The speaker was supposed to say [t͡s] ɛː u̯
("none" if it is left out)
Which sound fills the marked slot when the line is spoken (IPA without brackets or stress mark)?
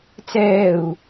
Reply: t͡s